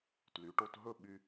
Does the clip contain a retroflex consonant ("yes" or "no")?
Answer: yes